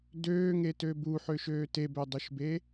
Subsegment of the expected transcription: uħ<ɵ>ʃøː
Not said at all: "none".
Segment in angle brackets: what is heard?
ø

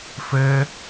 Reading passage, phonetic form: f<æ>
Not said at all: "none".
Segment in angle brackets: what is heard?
ɛ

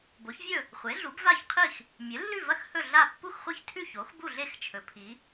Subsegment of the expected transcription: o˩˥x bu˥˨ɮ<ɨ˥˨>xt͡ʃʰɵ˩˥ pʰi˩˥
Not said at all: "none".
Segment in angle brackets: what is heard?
e˥˨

